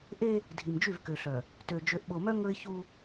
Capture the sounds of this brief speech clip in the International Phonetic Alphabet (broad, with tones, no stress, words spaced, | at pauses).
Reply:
ʔe˦ | dʱi˨md͡ʒy˦˨vkø˨ɬœ˨ | tø˨ d͡ʒø˨ʔɓo˨mœ˦ ŋɵ˦ɪ̯çu˦